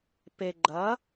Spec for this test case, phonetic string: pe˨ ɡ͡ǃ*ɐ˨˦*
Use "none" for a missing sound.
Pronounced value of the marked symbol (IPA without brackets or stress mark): ɐ˨˦